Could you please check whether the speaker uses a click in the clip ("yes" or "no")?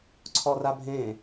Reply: yes